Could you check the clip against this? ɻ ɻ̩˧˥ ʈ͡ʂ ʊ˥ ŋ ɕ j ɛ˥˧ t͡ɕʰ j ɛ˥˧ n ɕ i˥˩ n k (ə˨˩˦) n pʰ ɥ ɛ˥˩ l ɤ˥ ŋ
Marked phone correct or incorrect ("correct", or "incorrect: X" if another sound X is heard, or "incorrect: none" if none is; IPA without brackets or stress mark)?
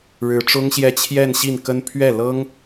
incorrect: ə˥